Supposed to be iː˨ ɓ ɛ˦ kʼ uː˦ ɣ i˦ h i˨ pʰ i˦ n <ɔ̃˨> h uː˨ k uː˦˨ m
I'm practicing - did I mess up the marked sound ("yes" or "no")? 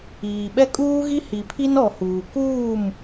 yes